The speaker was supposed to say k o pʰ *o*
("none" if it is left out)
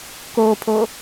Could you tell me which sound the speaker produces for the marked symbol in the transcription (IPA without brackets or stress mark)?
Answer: o